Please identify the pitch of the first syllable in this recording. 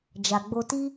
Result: low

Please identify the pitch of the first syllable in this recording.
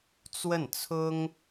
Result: falling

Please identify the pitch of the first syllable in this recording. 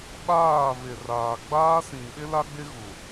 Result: falling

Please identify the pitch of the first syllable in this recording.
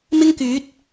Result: high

